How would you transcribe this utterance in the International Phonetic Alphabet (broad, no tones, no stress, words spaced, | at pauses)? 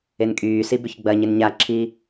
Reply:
enkʼyːsi bʏçɡ͡bɐɲɪn ɲaǁʰi